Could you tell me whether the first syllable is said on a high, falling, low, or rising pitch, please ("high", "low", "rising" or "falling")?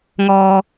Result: low